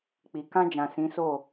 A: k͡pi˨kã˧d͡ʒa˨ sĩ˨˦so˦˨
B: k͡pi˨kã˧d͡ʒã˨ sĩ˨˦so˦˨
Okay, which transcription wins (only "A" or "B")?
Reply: B